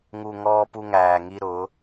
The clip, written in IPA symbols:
ŋ u˨ ŋ ɔː˦ p u˦ ŋ æː˨ ŋ i˦ ɾ ʊ˨˦

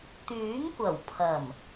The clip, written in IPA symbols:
t̪ yː˨˥ ŋ kʷ ɐ˨˩ w pʰ ɐ˨˩ m

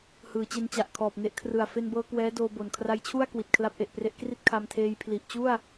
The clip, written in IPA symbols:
h ɯː˩˦ t͡ɕ e˧ n t͡ɕ a˨˩ ʔ kʰ ɔː˨˩ p̚ n e˦˥ ʔ kʰ r ɯ˨˩ a̯ f e˧ n b ɤː˧ k w ɛː˦˥ d oː˧ b o˨˩ n kʰ r a˦˥ j t͡ɕʰ u˥˩ a̯ k w i˨˩ t̚ kʰ l a˦˥ p̚ ʔ e˨˩ ʔ p r e˦˥ ʔ k r i˥˩ t̚ kʰ a˧ m tʰ eː˧ j pʰ l i˨˩ ʔ t͡ɕ u˥˩ a̯

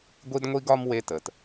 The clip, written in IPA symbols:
ɡʷ i˥ d ŋʷ i˥ ɡ ɒ˥ m w e˦ t ə˩ t

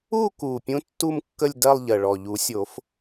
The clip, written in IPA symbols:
u˥˧ k u˨˩ pʲ ũ˧˥ tː u˥˧ m kː ə˥˧ lʲ d ɜ˥˧ lˠ ʎ ɜ˨˩ ɭ ɔ˨˩ ʎ u˨˩˦ sʲ o˨˩˦ f

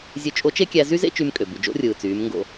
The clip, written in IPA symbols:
zʲ ø˧ t͡ʃʼ o˧˥ t͡ʃ e˥ kʲ æ˧ z y˥ z ḛ˥ t͡ʃ y˧ m kʼ ø˩ b y˩ d͡ʒ o̰˧˥ rʲ ɯː˩ t͡s yː˩˧ m ŋ ɡ o̰˧

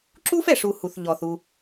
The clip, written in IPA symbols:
ǁ u˦ f ɛ˨ ʂ u˨ h u˨ θ ʎ ɔ˨ θ u˦

